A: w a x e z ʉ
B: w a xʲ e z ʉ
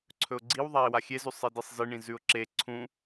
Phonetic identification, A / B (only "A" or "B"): B